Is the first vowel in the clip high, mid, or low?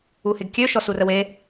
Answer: high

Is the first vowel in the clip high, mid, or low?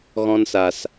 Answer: mid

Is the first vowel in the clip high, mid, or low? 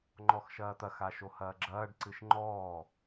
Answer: mid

